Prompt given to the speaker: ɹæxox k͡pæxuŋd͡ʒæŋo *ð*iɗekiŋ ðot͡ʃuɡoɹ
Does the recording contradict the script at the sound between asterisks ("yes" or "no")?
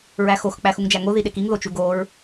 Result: no